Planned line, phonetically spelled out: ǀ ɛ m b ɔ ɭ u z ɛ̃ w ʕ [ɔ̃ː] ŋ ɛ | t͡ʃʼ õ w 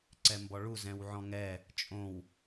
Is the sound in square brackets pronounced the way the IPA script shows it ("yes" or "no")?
no